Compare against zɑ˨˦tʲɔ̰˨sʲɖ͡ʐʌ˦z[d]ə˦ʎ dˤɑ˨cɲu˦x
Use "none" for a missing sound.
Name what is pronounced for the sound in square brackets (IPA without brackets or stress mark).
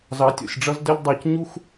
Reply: d